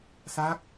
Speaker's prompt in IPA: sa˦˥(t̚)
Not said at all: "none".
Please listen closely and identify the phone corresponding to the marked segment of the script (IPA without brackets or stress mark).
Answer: k̚